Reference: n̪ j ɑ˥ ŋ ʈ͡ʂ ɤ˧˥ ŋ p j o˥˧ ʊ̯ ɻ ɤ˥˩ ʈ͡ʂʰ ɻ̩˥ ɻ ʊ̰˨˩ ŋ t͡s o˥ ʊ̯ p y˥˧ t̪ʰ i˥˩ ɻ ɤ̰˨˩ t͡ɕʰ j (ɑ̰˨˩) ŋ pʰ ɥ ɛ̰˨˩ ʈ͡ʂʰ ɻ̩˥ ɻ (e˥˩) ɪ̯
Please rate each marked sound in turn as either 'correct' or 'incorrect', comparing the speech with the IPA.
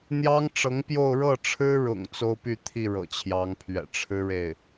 incorrect, correct

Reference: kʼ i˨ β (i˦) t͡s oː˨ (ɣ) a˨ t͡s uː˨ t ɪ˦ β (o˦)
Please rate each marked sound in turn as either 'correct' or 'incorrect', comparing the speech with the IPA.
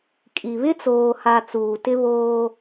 incorrect, incorrect, incorrect

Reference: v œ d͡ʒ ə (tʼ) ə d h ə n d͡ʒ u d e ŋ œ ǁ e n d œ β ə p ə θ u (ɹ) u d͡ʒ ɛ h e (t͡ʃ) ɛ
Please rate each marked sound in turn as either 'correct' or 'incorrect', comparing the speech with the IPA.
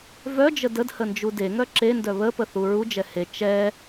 incorrect, correct, correct

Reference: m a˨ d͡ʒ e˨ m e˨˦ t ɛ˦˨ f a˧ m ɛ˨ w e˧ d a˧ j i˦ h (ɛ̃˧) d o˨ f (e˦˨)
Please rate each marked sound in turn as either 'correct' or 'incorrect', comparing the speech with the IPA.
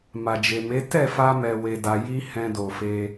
correct, incorrect

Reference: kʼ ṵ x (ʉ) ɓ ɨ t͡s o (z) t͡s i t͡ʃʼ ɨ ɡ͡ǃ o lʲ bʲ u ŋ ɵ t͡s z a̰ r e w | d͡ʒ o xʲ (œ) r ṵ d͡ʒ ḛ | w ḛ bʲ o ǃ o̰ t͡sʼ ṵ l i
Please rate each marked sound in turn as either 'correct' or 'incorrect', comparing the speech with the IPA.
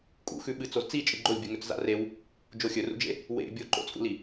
correct, correct, incorrect

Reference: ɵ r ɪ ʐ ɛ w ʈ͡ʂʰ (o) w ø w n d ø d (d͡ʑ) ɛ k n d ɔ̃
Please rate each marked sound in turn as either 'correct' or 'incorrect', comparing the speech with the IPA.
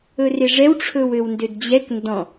incorrect, correct

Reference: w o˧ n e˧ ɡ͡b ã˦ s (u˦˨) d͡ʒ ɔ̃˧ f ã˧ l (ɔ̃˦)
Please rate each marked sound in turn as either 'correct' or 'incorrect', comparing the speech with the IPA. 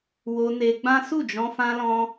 correct, incorrect

